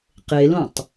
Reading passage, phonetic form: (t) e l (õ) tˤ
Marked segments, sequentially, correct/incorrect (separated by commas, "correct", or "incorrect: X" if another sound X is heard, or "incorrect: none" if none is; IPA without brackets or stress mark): incorrect: q, correct